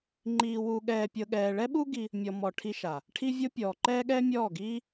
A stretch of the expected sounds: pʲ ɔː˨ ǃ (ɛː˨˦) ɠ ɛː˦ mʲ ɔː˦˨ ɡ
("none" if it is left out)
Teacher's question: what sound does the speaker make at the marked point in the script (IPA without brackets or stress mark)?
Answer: ɛː˦